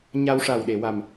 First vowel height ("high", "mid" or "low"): low